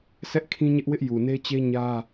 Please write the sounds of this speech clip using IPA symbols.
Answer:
sʰ ɛ˦ ʔ kʰ ĩ˦ ɲ ɪ˦ ʔ w ɪ˦ ʔ j u˨ n e˦ t͡ɕ e˦ ɲ ä˦

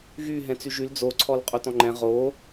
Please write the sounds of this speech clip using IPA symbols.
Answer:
ɣ y ɦ ɛ̃ t͡s y ʒ y l d͡z o ǀʰ ɔ l qʼ o t ɔ̃ ŋ͡ǃ ɛ̃ ʁ o

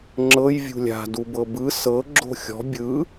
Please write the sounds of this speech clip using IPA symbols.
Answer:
ŋ͡ǁ ɤ j vʲ ṳ lʲ a̤ d u b ɤ b ɯ s ɤ ɡ͡ǁ o̤ xʲ ɔ̤ bʲ ɯ

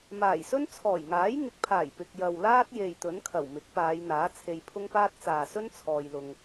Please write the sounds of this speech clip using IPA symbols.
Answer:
m aː˨˩ j s ɵ˥ n t͡sʰ ɔː˨˩ j ŋ aː˨˥ j ŋ ɪ˨˥ k̚ pʰ aː˨˩ j p ɪ˨ k̚ j ɐ˨ w l aː˥ t̚ j e˨ j t̪ ɵ˨˥ n kʰ ɐ˨˩ w m ɪ˨˥ k̚ p aː˨˧ j n̪ aː˨˥ t͡sʰ e˧ j pʰ ʊ˥ ŋ p aː˥ t̚ t͡s aː˨ s ɵ˥ n t͡sʰ ɔː˧ j l ʊ˧ ŋ

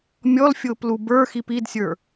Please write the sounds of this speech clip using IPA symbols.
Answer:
mʲ ɔ l fʲ ʊː p l u b ə˞ x i p i d sʲ ə˞

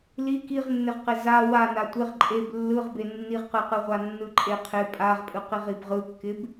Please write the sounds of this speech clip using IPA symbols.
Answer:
l i k i ʁ nː e ʁ q ɪ z a w a n a tʷ ɪ ʁ ǃʼ e b lː ɯ ʁ b e nː i ʁ q ɯ q ɯ ʁʷ a nː ɯ ǃʼ e qʰ ɪ pʼ a ʁ pʼ ɯ q i ʁ i b ʁ ɯ kː ɪ b

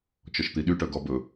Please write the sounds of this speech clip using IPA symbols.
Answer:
t͡ʃ ɔ ʃ t̪ i ɗ y ʈ œ ɡ ɔ b ɵ

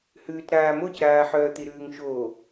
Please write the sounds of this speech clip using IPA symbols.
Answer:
h ʉː t ɾ aː m o c ɾ aː ħ œː t̪ i ɾ ʉː ŋ ʃ oː

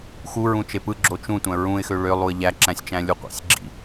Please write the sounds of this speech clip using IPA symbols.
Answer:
x u ɹ ũ t͡ʃ e p ɯ ɡ͡ǁ o t͡ʃ ũ tʷ æ̃ ɹ ũ ɪ̯ x ø ɭ ø lˠ u ə̯ ʎ æ ǁ æ̃ sʲ t͡ʃ æ̃ lʲ u qʷ ḭ sʲ ɡ͡ǁ ḭ

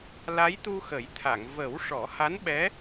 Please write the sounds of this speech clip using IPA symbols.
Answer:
l a˧˥ j t̪ u˧ x ə˨˩˦ j t̪ʰ a˨˩˨ ŋ v ə˨˩˦ w ʂ ɔ˨˩˦ h a˧˥ n ɓ ɛ˧˥

